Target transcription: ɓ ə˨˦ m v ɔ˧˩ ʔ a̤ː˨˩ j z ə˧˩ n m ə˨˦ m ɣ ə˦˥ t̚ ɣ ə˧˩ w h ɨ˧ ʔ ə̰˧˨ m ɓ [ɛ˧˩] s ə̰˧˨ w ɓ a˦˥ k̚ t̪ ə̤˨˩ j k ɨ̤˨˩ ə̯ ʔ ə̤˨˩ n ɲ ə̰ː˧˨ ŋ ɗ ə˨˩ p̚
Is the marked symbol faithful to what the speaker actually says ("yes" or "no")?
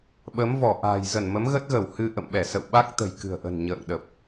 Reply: yes